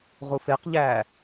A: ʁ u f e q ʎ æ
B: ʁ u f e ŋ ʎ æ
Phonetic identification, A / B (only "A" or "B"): A